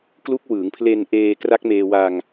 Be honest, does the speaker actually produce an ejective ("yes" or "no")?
no